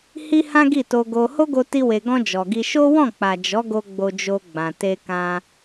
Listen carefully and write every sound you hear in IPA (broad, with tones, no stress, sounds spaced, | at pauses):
h i˦ h ã˦ ɡ i˦˨ t o˧ ɡ o˧ h o˦ ɡ o˧ t i˧ w e˨ ɡ ɔ̃˧ d͡ʒ ɔ˨ ɡ i˧ ʃ o˦ w ɔ̃˦˨ k͡p a˨ d͡ʒ ɔ˨˦ ɡ o˧ ɡ͡b o˧ d͡ʒ o˧ ɡ͡b ã˨ t e˧ k ã˧